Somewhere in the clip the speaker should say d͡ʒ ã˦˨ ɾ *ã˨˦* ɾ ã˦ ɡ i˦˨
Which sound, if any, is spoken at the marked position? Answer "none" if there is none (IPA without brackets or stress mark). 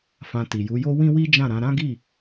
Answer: ã˨˦